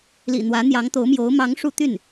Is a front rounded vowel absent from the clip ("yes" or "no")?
no